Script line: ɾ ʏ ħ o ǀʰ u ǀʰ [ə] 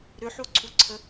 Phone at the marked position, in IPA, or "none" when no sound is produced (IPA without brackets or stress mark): ə